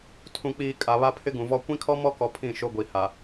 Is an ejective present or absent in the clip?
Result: present